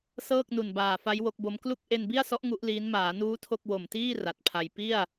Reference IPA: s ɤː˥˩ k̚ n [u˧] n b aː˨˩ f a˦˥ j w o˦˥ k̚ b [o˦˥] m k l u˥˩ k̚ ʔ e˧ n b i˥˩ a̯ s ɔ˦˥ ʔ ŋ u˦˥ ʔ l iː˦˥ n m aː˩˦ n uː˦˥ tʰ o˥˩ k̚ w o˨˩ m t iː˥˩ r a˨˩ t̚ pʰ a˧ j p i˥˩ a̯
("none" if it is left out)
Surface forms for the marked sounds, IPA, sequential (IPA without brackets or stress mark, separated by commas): u˨˩, o˦˥